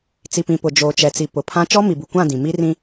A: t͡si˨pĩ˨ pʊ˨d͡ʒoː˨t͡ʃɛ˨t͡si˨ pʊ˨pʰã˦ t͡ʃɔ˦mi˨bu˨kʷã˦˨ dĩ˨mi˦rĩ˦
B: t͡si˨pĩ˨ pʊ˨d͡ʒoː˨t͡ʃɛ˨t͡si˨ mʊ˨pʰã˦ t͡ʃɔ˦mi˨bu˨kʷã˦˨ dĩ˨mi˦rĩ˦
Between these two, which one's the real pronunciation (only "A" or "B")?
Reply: A